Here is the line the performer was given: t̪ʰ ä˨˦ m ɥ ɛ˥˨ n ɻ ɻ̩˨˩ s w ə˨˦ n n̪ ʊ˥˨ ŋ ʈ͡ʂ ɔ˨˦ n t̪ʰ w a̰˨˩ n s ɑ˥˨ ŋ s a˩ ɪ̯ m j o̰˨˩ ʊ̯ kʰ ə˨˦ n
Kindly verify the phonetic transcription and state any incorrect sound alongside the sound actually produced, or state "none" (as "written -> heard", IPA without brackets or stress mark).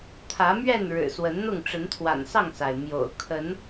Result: ɔ˨˦ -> ə˨˦